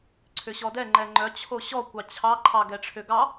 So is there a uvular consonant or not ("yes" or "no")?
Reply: no